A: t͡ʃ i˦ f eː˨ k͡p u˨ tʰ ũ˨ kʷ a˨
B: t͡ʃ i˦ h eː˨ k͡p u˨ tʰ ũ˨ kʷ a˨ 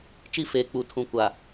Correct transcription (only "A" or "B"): A